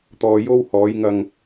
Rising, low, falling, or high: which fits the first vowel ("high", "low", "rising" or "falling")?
low